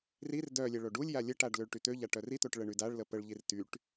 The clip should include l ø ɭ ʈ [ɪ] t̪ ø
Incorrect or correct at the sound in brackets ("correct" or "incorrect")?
incorrect